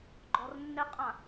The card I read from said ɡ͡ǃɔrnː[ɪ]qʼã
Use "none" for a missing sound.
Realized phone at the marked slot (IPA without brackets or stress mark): ɪ